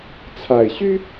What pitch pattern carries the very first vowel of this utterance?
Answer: low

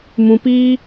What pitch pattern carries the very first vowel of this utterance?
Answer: low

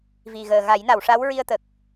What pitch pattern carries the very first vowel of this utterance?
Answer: low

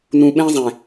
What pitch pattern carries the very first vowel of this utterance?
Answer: low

